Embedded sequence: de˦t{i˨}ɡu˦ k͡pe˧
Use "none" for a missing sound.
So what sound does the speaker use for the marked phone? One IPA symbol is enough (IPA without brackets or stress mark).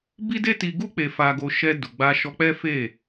i˧